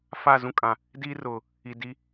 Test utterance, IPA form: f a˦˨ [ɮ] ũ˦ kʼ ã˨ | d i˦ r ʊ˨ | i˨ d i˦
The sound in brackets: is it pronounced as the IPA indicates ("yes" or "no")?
no